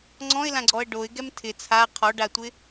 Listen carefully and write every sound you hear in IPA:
ŋ͡ǀ ɔ̃ ɪ̯ l ã ɡ͡ǀ ɔ ə̯ ɖ o ɪ̯ ɡ ɛ m tʰ ɪ t͡sʰ a qʰ ɔ ɖ a tʷ ɪ

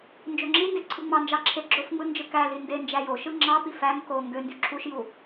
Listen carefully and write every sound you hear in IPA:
n d͡ʒ ø ŋ͡ǁ i n d e ǀʰ ɯ ŋ͡m ɑ n d͡ʒ ɑ ǁʰ e ɡ͡ǁ o f ŋ͡m ɯ n d͡ʒ ɯ k æ l i n d e n d͡ʒ æ j o ʃ ɯ ŋ͡ǁ ɑ p i f æ ŋ k o ŋ ɡ ø n d y ǁʰ u ʃ j u

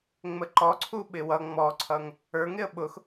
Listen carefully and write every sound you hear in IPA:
ŋ͡m ə ǃ ɔ ǀʰ u ɓ ɪ w ʌ ŋ͡m ɔ ǀʰ ʌ ŋ | ə˞ ŋ ɪ ə̯ ɓ ʊ x

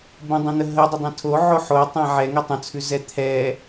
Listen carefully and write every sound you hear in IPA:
b ə̃ dˤ ɛ̃ n̪ ə ɦ ə dˤ ə dˤ ɛ̃ tʰ o ʕ o ħ o tˤ ɛ̃ ʕ ɛ ŋ ɛ tˤ ə̃ t͡sʰ ʉ z ɛ t̪ʰ ɛ

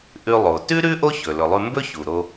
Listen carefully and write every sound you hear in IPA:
ʔ ʉ˧ lˠ o˩ t ʉ˥ ɾ ʉ˥ ʔ o˥ ç ɵ˩ l ɵ˩ lˠ ʉ˧ m b ɵ˥ ç u˩ ɾ o˧

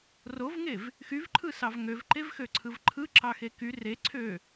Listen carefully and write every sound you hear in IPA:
r o v ŋ e v | x y v ǃʰ ɯ s ɑ v ŋ ø v ǃ e v x ø ǀʰ ɯ v ǃʰ ɯ ǁ ɑ x e k y r e ǀʰ ø

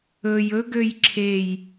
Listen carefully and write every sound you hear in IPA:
ɵ j ɵ ɡ ø j ǁʰ e j

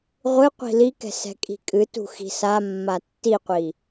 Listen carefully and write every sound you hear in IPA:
ʁʷ ɨ qʷ i̤ l i k ɛ̤ s ɛ̤ kʼ i̤ kʼ ɨ t ṳ x i̤ s a mː a tː i qʷ i

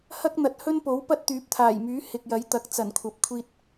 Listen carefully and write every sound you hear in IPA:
h ɐ˥ k̚ n̪ ɐ˨ t̚ h ɵ˥ n p o˨˥ w p ɐ˥ t̚ t̪ yː˨˥ p̚ t̪ʰ aː˨˩ j m yː˨˥ h ɪ˨ k̚ j ɐ˨˥ j t̪ ɐ˨˥ k̚ t͡s ɐ˨˩ n kʷʰ ɐ˨ p̚ kʷʰ iː˧ t̚

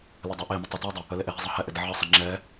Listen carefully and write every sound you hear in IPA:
l ɪ dˤ ɛ ʔ e m ɪ tˤ ɪ t ɛ dˤ ə | ə l e ʔ e ɦ ɪ zˤ ɜ h ɛ ʔ ɪ d ə ʕ ə sˤ ɪ ŋ͡ǁ ɛ

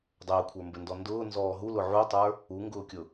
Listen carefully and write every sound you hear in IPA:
dˤ əː kʷʰ ə˞ m b ɘ n d ɔ n d ʊː n z ɔː ɦ u l ʊ ʕ u tˤ ə˞ | u ŋ ɡ ʊː kʲ ʊ

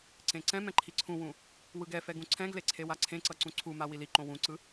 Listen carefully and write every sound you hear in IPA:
ǀ ẽ ǀ ɛ̃ m ɛ̃ ǃʰ i ǀʰ ũ w ũ | w ɯ ɡ ɛ f ɛ ɡ ũ ǀʰ ɛ̃ ɡ l e ǀʰ e w a ǀʰ ẽ ǀ ʌ ǀ ũ ǀʰ u m a w i l i ǃ õ w ũ ǀ ɯ

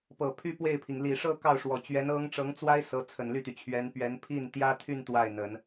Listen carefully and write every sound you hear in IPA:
p ɤ˨˩ pʰ y˥ p w e˥˩ ɪ̯ pʰ i˩ ŋ l i˨˩ ʂ ɤ˥˧ k ɑ˥˩ ʊ̯ ʂ w ɔ˨˩ t͡ɕ ɥ ɛ˧˥ n ɤ˥ ŋ ʈ͡ʂ ɤ˧˥ ŋ t͡s w a˥ ɪ̯ s ɤ˧˥ t͡sʰ ə˨˩ n l y˥˩ t̪ y˩ t͡ɕʰ ɥ ɛ˧˥ n p ɥ ɛ˧˥ n pʰ i˥˩ n t̪ j ä˥ t̪ʰ y˥˧ n t̪ w a˥˩ ɪ̯ n̪ ə˨˩˦ n

